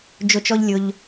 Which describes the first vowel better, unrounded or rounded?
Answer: rounded